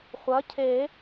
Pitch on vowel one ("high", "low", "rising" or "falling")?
rising